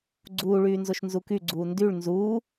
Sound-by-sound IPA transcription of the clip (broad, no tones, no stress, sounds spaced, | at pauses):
ɡ͡ǀ uː ɭ yː n z o ʃ n z u k y ɡ͡ǀ uː n d y ɭ n z uː